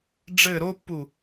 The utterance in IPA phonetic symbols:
ɖ͡ʐɘ ɾopːu

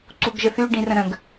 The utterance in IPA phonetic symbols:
ǀuɡʒəθy ɖĩrə̃ɾə̃ɡ

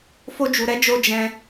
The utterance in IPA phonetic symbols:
fo˦d͡ʒu˧ɾɛ˦d͡ʒo˦ d͡ʒɛ̃˦

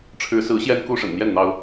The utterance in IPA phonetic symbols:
ʈ͡ʂʰɻ̩˨˦sɹ̩˨˦ ɕjɛ˦n ku˦ ʂə̰˨˩nn̪jɛ˥˨n n̪ɑ˦ʊ̯

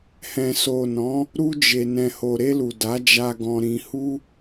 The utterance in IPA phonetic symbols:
hɛ̃˨so˨nɔ̃˨˦ | ɾu˧d͡ʒe˨ nɛ̃˨ho˨ɾe˧lu˨ da˨˦d͡ʒa˧ɡɔ̃˧ɾĩ˧ hu˦

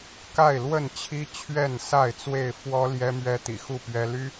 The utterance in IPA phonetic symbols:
ka˥˨ɪ̯lwə˥˨nt͡ɕʰi˦ t͡ɕʰɥɛ˥˨nsa˥˨ɪ̯t͡swe˥˨ɪ̯ fwɔ˦ ljɛ˦mɥɛ˦t̪ḭ˨˩ xu˥˨ pɥɛ˦ ly˦

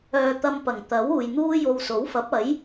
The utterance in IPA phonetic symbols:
œː˨t̪ɐ˧mpɐ˨˩ŋ t̪ɐ˨˥w uː˨jn̪uː˥jo˧w so˨˥wfɐ˨˥p̚ɐ˨˥j

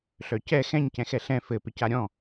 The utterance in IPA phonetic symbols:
ɬœcɛ xɛ̃ɲ cɛ̃xɛɬɛ̃ fɘ pɪcaɾʲɔ̃

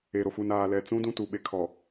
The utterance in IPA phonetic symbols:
e˨ɾo˨fu˨n aː˨lɛ˨t͡sũ˦ dũ˦tu˨ ɓe˨kʰɔ˨

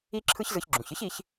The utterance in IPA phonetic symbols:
i˥ǁʰɯ˥çzɯ˧ç ɡ͡ǁũ˩çɨ˥çi˧ç

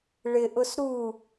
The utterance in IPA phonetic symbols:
ɭɪʔʊs ɾu

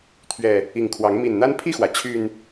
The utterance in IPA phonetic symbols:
t̪ʰɥɛ˨˩ | i˨˩ŋkʰwɑ˨˦ŋ mi˨˩nn̪a˦npʰi˥˨xwä˩ t͡ɕʰy˨˩n

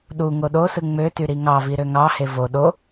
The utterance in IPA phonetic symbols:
ɗu ŋoɗosɯ ŋ͡møty ɾiŋɑvi ɾøŋɑhe vo ɗo

